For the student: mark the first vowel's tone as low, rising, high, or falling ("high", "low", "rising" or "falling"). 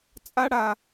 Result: high